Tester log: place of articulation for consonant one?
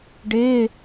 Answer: retroflex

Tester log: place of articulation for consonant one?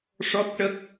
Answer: retroflex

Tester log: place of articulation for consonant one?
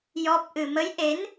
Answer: palatal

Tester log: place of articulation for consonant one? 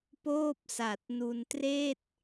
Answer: labial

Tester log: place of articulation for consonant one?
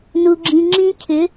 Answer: alveolar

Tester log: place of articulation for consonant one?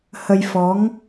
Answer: glottal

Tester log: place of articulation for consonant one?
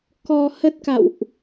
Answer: velar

